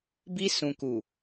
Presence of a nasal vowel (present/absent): present